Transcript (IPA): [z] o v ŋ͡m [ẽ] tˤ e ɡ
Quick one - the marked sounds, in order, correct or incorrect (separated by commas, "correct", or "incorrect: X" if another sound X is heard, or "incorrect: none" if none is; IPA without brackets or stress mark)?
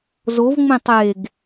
correct, correct